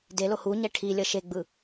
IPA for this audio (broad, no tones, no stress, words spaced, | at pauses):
delo huɲɛ ʈʰilʲʌ ʃeɡ͡bɯ